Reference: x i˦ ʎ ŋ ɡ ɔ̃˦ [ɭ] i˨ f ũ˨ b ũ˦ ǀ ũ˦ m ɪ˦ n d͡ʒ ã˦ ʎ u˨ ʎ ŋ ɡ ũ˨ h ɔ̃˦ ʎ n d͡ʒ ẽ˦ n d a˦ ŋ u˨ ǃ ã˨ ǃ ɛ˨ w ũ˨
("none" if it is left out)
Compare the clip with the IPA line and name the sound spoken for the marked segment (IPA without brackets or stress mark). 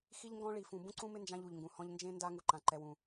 ɭ